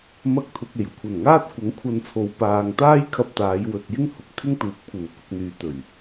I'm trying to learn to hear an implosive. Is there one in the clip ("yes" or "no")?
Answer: no